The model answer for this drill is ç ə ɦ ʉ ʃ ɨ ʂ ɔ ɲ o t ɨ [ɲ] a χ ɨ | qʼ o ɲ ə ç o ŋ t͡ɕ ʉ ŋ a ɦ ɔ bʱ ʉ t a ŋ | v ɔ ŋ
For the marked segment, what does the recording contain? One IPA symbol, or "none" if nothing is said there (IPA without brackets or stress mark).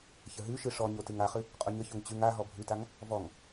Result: ŋ